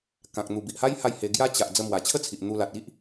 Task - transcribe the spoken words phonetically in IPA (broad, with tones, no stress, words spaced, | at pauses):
kã˨k̚n̪u˨˩bi˨ʔha˦j ha˥˧jhe˧ ɡja˦ t͡ɕa˨ʔ d͡zə˧mwa˨˩t͡ɕʰə˥˧t͡sʰi˨ʔ n̪u˧ la˨t̚i˦ʔ